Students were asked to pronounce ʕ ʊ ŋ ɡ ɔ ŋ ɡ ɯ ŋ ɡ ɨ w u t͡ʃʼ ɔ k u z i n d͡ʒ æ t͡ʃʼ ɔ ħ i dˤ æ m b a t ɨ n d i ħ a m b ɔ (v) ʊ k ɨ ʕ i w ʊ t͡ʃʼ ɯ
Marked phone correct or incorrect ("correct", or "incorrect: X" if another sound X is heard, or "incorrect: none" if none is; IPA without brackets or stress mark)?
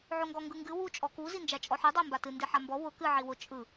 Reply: incorrect: w